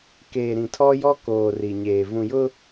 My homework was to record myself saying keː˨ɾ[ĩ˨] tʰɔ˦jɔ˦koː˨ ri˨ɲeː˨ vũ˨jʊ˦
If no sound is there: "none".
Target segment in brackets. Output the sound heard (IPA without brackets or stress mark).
ĩ˨